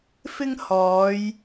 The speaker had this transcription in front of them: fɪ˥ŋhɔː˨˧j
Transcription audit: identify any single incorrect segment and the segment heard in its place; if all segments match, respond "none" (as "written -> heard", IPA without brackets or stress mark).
none